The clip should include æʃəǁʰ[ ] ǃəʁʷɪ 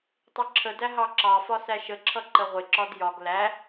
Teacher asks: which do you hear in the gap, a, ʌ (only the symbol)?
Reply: ʌ